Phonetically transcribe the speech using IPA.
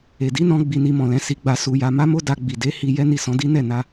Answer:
e˨ d i˨˦ n ɔ̃˧ ɡ͡b i˧ n i˧ m ɔ̃˨ l ɛ̃˨˦ s i˧ ɡ͡b a˧ s u˧ j a˧ m a˦ m o˦ d a˧ ɡ͡b i˨ d e˨˦ h i˧ j ɛ˦ n i˦˨ s ɔ̃˨˦ d i˦ n ɛ˦˨ n a˧

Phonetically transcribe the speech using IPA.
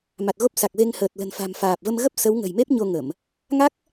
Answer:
m a˨˩ t̚ ɣ o˦˥ p̚ s a˨˩ k̚ v e˧ ŋ h əː˨˩ t̚ l ə̤˨˩ n f a̤˨˩ m f aː˨˩ p̚ v ə˧ m ɣ ə˦˥ p̚ s ə˨˦ w ŋ ə̤˨˩ j m e˦˥ p̚ ɲ o˧ ŋ ə˧˩˨ m | ŋ a˦˥ k̚

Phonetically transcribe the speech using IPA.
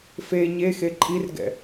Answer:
f e ɲ e x e ǃʼ i r ɡ ɛ̰

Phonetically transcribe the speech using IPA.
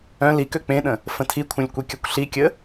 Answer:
œ̃ l i k ø k͡p ẽ ɗ ə̃ | f ə̃ tʰ i kʷʰ œ̃ lʲ kʷ i kʲ ʌ kʷ ɬ i kʲ ə

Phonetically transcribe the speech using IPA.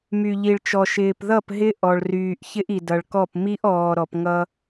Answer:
m y˨ ʎ i˨ ɭ t͡ʃ ɔ˨ ʃ ɪː˨ p ð ʌ˦˨ p ɦ ɪ˦ ʔ ɔ˨ ɭ r yː˨ ʔ ç ɪ˦ ʔ i˨ d ʌ˨ ɭ k ɔ˦˨ p m i˦ ʔ ɔː˨ ɾ ɔ˨ p ŋ ʌ˦

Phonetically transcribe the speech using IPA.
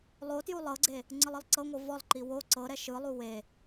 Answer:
lˠ o t j u lˠ ɤ ɡ͡ǀ e | ŋ͡ǀ ɯ lˠ ɯ lˠ ǀ ɤ ŋʷ ɤ v ɔ lˠ ǃ i w o ǀ ɤ ɾ ɛ ʃ ɯ lˠ u w e

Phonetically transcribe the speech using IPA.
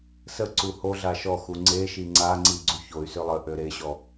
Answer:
s ə ǀ u h o ɮ a ʃ ɔ x u ŋ͡ǀ e ʃ i ŋ͡ǀ a ŋ͡ǀ i ɡ͡ǀ u ç o y̯ s ø lˠ ə ʔ ø ɾ e ɕ ɔ

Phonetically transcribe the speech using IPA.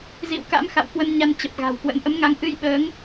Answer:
z ḭ˧˨ w k a̰˧˥ m x a̰˧˨ w k w ə˧ n ɲ a˧ n t͡ɕ ə˨˩ p̚ ɣ a̤˨˩ w k w ə̰˧˥ n ʔ ə˨˦ m ŋ a˨˦ ŋ ʔ ɨ˧ j ɓ əː˨˦ ŋ

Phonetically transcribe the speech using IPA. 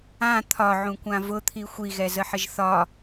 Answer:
ã t̪ʰ ɒ ʕ ũ kʷ ã v ʊ t̪ʰ i xʷ i ɣ ɛ z ə ħ ə ʒ θ ɒ

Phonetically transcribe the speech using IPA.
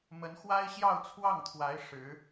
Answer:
m ə˧˥ n x w a˥ ɪ̯ ɕ j ɑ˥˧ ʊ̯ t͡sʰ w ɑ˥˩ ŋ t̪ʰ w a˧˥ ɪ̯ ʂ ɻ̩˧˥

